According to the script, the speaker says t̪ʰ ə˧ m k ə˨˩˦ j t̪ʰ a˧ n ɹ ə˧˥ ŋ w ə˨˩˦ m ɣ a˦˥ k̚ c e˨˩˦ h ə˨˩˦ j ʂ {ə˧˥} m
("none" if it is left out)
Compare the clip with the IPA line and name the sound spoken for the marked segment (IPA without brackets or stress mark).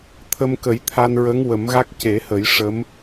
ə˧˥